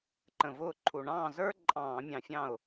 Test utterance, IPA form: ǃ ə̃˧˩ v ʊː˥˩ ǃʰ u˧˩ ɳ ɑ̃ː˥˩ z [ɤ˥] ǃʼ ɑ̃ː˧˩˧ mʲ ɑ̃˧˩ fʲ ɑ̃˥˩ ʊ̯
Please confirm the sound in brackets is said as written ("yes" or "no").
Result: no